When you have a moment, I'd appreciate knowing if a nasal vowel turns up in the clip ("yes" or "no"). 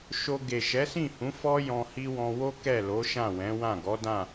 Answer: yes